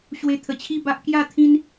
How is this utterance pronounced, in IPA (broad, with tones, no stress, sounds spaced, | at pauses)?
ɕ w e˧ t̪ʰ ə˨˩ t͡ɕʰ i˥˧ b a˦ ʔ k j a˥˧ t̪ʰ ĩ˦ n